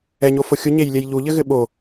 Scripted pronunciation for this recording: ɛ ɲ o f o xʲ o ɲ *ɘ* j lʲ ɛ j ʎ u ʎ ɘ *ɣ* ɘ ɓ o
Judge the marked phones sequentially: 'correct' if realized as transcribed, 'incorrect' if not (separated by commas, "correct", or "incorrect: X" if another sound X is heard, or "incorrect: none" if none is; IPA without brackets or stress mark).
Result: incorrect: e, correct